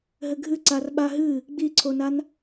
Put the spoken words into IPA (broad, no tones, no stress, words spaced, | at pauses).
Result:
ɦɘɡʱɨ ǀarɓaɦɨ | ɡ͡biǀʰonan